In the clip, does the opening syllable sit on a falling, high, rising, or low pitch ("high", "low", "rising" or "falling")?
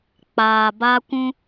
low